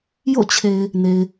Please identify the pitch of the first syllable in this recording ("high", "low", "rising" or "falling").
falling